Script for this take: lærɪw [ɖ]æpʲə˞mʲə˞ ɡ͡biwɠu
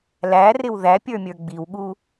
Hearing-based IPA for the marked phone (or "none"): ð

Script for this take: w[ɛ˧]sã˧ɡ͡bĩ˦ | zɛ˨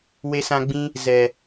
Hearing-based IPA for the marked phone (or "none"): e˧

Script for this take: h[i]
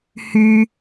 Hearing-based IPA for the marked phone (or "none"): y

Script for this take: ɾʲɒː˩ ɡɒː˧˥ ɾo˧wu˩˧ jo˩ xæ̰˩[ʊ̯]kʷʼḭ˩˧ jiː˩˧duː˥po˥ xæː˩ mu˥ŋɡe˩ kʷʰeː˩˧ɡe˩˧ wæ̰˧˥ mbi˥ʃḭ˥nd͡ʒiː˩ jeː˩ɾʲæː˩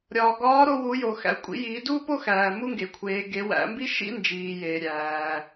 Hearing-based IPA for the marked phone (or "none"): ʊ̯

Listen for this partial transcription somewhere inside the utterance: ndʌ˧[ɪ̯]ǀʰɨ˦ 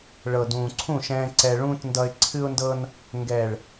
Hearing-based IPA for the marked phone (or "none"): ɪ̯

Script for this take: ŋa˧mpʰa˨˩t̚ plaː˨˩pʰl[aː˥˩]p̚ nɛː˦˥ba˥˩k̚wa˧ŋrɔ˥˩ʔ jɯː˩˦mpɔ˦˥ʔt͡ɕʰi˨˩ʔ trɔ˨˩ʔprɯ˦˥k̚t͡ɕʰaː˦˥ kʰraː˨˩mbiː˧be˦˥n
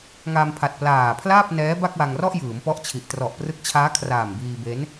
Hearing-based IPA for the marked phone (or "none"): aː˥˩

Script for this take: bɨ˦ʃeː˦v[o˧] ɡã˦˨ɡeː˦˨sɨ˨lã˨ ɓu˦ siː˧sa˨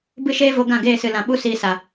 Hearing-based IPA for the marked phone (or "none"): o˧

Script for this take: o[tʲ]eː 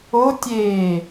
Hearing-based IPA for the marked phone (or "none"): tʲ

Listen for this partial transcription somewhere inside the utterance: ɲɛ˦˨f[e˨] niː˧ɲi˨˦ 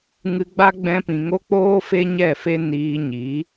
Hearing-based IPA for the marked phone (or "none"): e˦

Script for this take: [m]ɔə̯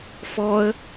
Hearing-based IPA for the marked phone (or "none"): f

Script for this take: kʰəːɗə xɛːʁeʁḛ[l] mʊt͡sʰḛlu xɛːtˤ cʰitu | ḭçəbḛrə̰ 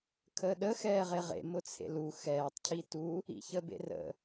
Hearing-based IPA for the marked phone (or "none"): none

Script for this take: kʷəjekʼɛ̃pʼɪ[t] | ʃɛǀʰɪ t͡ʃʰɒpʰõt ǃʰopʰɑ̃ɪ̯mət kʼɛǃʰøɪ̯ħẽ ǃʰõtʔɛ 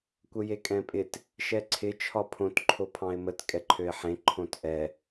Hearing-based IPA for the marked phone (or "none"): t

